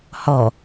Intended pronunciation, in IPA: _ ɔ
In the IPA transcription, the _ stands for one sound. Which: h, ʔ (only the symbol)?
h